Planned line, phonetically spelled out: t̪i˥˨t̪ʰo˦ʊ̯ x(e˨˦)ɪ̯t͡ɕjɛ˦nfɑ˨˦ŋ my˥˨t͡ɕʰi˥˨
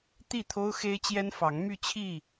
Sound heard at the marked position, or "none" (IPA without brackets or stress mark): e˦